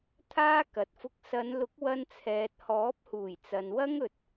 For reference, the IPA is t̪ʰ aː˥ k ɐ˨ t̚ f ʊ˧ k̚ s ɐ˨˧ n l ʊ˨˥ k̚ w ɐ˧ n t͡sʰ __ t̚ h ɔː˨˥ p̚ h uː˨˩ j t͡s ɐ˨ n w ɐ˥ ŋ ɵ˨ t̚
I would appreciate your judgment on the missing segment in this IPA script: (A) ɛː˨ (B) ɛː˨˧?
A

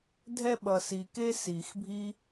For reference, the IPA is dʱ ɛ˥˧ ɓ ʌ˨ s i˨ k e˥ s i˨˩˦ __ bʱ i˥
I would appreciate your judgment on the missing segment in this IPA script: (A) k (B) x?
B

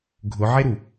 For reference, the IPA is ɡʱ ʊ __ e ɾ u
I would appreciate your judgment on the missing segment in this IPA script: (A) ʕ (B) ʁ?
A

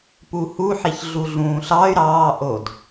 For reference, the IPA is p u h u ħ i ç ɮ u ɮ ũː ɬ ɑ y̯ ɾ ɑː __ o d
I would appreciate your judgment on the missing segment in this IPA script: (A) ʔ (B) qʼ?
A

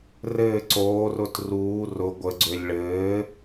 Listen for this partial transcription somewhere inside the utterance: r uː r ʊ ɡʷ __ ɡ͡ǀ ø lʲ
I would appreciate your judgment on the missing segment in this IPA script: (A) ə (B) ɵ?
A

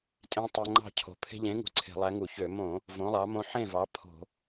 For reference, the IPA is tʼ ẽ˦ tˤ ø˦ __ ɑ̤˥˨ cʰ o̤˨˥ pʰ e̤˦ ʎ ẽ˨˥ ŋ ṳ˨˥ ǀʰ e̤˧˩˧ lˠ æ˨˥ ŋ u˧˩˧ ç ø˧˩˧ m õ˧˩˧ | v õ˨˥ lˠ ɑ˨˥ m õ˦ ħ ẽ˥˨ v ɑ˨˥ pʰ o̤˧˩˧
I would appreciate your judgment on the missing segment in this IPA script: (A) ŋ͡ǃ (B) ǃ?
A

